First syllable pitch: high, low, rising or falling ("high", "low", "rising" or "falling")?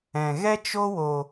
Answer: low